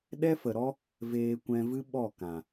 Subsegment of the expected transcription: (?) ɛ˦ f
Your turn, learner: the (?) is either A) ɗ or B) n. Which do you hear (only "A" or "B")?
A